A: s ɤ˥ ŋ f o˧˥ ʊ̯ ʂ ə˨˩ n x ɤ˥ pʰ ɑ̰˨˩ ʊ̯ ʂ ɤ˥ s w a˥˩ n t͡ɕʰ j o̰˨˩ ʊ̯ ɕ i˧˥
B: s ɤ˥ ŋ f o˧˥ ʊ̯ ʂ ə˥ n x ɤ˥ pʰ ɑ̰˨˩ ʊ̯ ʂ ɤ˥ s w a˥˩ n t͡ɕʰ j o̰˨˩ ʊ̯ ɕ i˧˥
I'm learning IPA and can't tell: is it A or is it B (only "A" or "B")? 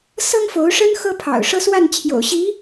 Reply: B